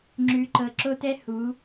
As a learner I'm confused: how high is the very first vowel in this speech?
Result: high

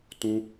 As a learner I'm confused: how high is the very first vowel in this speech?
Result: high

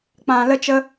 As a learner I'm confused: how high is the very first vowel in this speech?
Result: low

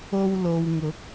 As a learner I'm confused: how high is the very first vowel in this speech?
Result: mid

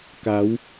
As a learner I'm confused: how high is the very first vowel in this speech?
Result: low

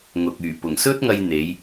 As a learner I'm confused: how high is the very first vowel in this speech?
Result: high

